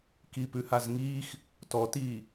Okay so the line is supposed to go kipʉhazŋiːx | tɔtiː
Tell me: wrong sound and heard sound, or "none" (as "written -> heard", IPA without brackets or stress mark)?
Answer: none